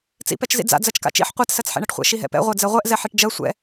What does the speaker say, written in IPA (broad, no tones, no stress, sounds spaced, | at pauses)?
t͡s ḭ p ɛ t͡ʃ z ḭ d͡z a̰ d͡z ɜ t͡ʃ k a̰ t͡ʃ ḭ ħ qʷ a t s ɜ t͡s ħ ɛ̰ ɳ ɜ ʈ χʷ ɛ̰ ʃ i ɦ ɛ̰ p ɛ̰ ʁʷ ɜ d͡z ɛ ʁʷ ɛ ʔ z ɛ ħ i ʈ d͡ʒ ɜ sʷ ɛ̰